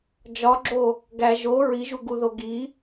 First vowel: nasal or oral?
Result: oral